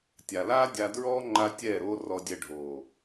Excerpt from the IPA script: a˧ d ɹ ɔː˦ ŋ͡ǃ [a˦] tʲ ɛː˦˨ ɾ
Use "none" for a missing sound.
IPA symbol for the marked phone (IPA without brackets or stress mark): a˧